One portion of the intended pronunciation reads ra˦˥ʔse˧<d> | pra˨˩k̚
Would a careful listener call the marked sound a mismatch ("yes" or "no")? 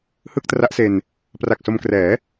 yes